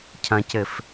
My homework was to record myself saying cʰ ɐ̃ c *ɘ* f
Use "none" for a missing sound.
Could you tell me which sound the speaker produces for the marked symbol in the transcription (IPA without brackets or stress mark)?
ɘ